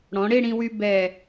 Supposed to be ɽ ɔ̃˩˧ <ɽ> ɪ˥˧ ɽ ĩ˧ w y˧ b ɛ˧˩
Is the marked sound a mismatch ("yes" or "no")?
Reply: no